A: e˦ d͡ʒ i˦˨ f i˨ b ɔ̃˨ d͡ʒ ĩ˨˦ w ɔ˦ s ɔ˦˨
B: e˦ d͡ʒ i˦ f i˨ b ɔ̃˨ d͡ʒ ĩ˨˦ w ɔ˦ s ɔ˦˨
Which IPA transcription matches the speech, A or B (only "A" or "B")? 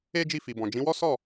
A